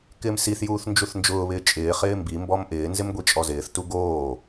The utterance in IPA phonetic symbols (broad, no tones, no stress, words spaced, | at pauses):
kɪːmsiθjuːθ nd͡ʒuθnd͡ʒʊːβɪː t͡ʃʼɪːχɪː mbimbɔm ʔɪːnzɪm ɡʷit͡ʃʼɔzɪːθtu ɡoː